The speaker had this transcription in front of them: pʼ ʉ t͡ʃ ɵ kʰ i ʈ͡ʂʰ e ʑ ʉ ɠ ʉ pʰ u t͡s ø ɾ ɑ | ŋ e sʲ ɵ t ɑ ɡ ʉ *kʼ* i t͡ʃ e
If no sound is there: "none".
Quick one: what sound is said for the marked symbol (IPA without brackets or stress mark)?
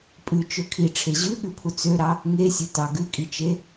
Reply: kʼ